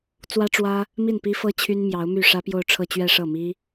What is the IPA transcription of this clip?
t͡s w ä˥ ʈ͡ʂ w ä˥ | m i˥˩ n p i˥ f ɤ˥ t͡ɕʰ y˥ n m j ɑ˧˥ ʊ̯ m y˥˩ ʂ ä˥ p j o˥˧ ʊ̯ ʈ͡ʂʰ ɤ˥˧ t͡ɕ ɥ ɛ˥˧ ʂ ɤ˥˩ m i˥

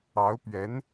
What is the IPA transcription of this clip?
ɑ˧˥ ʊ̯ p ɥ ɛ˧˥ n

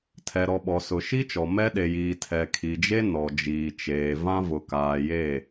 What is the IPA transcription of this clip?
tʰ ɛ˨ ɾ ɔ˨ ɓ ɔ˨ s ʊ˨ ʃ i˦ t͡ʃ ɔ˨ m ɛ˦ ɗ e˨ j iː˨ tʰ ɛ˨ kʰ i˨ d͡ʒ e˦ n ɔ˨ d͡ʒ iː˨ t͡ʃ eː˨ v ã˦ v ʊ˨ k aː˨ j e˦˨

